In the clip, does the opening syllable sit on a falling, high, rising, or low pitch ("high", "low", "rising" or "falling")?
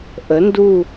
rising